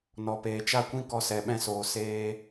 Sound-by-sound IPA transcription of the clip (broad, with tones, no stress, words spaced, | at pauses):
nɔ˧peː˧ t͡ʃa˦kʷĩ˦ kɔ˧sɛ˨ɓɛ̃˧soː˨ seː˧